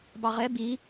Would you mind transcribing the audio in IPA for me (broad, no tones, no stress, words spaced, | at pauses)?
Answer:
bɑʁɛ bi